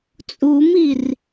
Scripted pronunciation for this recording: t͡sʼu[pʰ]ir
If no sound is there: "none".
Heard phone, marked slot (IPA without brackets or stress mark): m